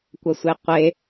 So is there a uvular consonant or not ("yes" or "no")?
yes